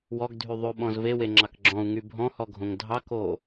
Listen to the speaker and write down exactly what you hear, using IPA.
w ɔ ɡ dʱ y ðˤ ʉ ɓ ɔ̃ z v e w e ŋ͡ǁ ɑ k ɡ͡ǁ ɔ̃ u̯ ŋ y bʱ ɔ̃ h ɔ ɡʱ õ ŋ dʱ ɑ k o

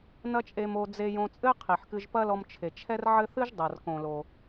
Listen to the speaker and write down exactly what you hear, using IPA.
n̪ ɐ˥ t͡ʃʼ e˧ m o˧ d͡z e˧ j õ˧ t͡sʼ ɘ˥ qʰ i˩ ħ k ɨ˧ ʒ p ɐ˥ l ɔ˧ m t͡ʃʰ e˩ t͡ʃʰ ɛ˥ r ʕ ɘ˥ θ ɨ˥ ʒ dˤ ɐ˩ r k õ˩ l o˩

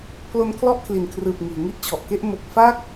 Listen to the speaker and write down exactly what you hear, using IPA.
pʰ l o˦˥ n kʰ l ɔ˥˩ ʔ kʰ l i˨˩ n kʰ r ɯː˨˩ p̚ ŋ iː˩˦ ŋ i˥˩ ʔ t͡ɕʰ ɔ˨˩ ʔ k e˥˩ ʔ m o˨˩ k̚ f a˦˥ k̚

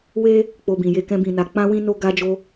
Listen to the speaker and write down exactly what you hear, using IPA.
w e˦ | k͡p o˧ b ĩ˨ j e˧ k ɛ̃˦ b ĩ˧ n a˧ k͡p ã˦ w ĩ˦ n o˦ ɡ a˦ d͡ʒ o˦

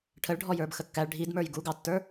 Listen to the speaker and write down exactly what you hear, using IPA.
ʈʰ ə ɭ ɖʱ ɔ j ə˞ b x ə kː æ ɭ ɖʱ i d m ə˞ j ɡ u ɡ ɑ tː ə˞

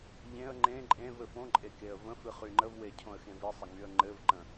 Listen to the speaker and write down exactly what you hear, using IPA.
ʎ ẽ ə̯ ŋ͡ǃ ẽ ǃʼ ẽ v ɘ f õ ǃʼ e k e ə̯ v ə̃ f ɨ χ y ŋ͡ǃ ə v w e cʰ õ ə̯ x ẽ v i sˤ ə ŋ y ə̯ ŋ͡ǃ ɘ v ǃ ə̃

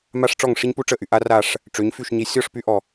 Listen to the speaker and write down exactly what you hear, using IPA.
m a˧ ʂ ʈ͡ʂ ɔ˦˨ ŋ ʂ i˦ ɲ p u˦ ʈ͡ʂ ə˦˨ ʔ y˨ ʔ a˦ r a˦˨ ʂ | ʈ͡ʂ ø˨˦ ɲ f y˦˨ ʃ ɲ i˧ sʲ ɔ˦˨ ʂ p y˧ ʔ ɔ˨

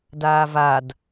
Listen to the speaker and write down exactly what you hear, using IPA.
d aː v a d

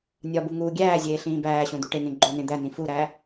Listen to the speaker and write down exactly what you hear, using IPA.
nʲ ɒ b u ŋ uː ɡʲ æː zʲ eː ɬ ĩː b æː ɕ õ d̪ u ʈ e ŋ ẽ ɡ͡ǃ o n ẽ d̪ æ n ĩ f u ɾ æ

